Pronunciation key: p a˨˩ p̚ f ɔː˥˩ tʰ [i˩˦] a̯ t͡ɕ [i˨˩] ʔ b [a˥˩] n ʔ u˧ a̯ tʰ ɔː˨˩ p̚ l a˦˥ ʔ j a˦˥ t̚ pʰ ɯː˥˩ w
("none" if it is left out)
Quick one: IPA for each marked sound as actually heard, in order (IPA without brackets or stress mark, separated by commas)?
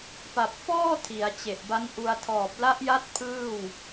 i˩˦, e˨˩, a˦˥